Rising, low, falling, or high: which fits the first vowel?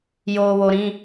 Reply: low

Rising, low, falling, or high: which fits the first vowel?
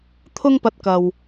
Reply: high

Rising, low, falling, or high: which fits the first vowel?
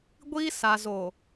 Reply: high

